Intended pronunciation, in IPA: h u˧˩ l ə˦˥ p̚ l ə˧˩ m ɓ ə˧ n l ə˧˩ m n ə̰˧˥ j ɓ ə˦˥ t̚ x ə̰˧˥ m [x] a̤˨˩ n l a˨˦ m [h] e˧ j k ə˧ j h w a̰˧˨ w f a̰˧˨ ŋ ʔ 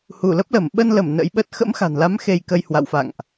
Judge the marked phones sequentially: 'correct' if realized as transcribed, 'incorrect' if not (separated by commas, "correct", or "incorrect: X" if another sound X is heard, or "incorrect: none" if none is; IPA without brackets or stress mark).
correct, incorrect: x